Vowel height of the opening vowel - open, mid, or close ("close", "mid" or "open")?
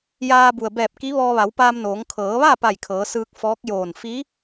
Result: open